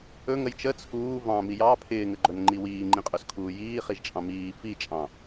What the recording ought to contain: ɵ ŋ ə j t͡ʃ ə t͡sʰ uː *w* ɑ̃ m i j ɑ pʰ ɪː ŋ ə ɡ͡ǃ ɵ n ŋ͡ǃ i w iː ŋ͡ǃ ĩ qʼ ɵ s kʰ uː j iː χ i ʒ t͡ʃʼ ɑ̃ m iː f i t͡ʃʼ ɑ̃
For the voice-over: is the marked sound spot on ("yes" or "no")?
no